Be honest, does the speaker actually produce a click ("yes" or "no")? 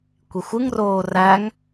no